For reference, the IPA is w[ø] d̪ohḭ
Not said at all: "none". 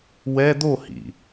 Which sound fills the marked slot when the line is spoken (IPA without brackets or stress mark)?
ɛ